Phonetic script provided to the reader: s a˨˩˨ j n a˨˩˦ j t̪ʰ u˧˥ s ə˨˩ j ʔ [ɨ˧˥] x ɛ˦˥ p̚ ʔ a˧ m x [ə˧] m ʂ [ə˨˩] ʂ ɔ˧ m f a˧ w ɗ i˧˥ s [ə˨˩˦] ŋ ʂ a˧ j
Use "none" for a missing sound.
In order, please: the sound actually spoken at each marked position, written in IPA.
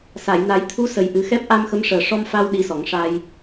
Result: ɨ˨˩˦, ə˧˥, əː˨˩, ɔ˨˩˦

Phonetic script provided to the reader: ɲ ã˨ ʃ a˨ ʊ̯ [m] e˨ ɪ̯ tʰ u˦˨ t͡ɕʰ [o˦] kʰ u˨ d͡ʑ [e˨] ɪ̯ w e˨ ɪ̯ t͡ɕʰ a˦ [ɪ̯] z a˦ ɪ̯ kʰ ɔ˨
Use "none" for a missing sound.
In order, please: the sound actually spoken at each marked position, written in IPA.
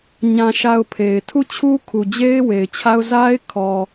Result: pʰ, u˦, e˦, ʊ̯

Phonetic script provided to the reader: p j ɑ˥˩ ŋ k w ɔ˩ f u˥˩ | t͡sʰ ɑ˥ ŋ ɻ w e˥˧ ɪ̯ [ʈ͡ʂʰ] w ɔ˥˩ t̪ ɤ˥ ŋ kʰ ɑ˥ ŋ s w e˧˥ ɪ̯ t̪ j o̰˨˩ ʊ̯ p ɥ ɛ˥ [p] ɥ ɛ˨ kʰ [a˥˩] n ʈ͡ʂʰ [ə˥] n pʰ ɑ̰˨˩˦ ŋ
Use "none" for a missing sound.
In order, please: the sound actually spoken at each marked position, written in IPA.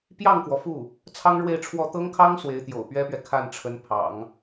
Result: ʈ͡ʂʰ, p, a˥˩, ə˧˥

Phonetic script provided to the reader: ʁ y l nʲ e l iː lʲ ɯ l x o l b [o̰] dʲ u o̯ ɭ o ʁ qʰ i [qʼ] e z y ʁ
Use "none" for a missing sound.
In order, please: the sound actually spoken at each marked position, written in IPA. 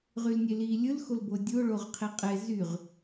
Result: o, qʼ

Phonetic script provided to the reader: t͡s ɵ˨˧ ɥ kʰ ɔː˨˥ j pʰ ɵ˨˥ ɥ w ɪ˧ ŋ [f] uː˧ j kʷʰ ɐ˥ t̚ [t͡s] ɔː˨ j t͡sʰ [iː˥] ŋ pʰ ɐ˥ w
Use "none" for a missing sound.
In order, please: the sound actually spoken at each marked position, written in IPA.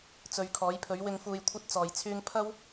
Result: f, t͡s, yː˥

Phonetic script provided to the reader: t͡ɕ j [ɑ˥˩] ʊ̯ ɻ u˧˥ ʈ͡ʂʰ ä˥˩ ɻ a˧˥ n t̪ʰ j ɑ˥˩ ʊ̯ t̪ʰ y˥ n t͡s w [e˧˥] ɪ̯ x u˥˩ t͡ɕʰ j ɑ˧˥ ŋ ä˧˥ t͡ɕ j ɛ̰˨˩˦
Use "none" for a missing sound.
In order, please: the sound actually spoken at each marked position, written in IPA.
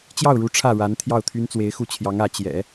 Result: ɑ˥˩, e˧˥

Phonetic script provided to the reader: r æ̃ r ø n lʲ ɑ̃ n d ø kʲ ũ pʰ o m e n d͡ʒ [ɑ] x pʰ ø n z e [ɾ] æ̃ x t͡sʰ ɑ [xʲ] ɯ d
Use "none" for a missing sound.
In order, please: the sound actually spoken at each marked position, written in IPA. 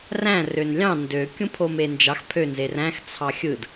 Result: ɑ, r, xʲ

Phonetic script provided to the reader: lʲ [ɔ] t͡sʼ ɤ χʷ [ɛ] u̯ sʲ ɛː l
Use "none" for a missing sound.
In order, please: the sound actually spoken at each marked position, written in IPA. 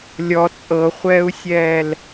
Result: ɔ, ɛː

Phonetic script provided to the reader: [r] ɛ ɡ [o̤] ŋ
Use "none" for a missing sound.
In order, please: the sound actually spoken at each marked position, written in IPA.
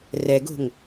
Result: r, o̤

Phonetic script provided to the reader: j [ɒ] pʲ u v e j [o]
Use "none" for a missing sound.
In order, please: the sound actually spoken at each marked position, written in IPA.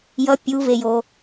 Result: ʌ, o

